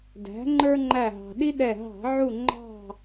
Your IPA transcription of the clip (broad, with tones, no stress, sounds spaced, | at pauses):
d æ̤˩˥ ŋ͡ǃ ə˞˦ ŋ͡ǃ æ˧˩ ɦ ɑ̤˩ ɗ i˦ ɗ ɛ˧˩ ɦ ɑ̤˧˩˧ ʕ u˧˩ ŋ͡ǃ ɑ̤˧˩